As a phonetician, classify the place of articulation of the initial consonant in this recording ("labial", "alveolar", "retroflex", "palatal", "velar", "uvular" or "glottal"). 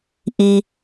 glottal